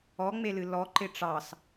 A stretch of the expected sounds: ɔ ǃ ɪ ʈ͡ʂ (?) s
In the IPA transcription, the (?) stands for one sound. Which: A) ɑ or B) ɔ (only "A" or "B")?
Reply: A